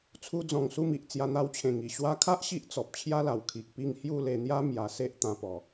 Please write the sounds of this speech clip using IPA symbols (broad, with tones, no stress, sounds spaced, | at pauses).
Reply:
t͡sʰ u˧ d͡z ɔ̃˨˩ ŋ s u˥˧ m i˨ ʔ t͡s j a˧ n̪ a˧ w t͡ɕʰ ẽ˨˩ ŋ i˨˩ ɕ w a˧ kʰ a˦ ʔ ɕ i˦ ʔ t͡s ɔ˨ p̚ t͡ɕʰ j a˦ l a˨˩ w kʰ i˨ k̚ p i˥˧ ŋ h j u˥˧ l e˧ n̪ j a˦ m j a˧ s e˦ ʔ t̪ ã˧ p ɔ˨˩